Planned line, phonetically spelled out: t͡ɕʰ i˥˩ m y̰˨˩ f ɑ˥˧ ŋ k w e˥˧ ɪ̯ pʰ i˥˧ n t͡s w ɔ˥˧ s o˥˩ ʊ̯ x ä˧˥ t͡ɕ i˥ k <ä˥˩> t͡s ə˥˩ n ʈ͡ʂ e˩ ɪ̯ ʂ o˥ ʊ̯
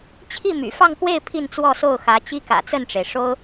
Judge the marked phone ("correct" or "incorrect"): incorrect